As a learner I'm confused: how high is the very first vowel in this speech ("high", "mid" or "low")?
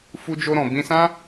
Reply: high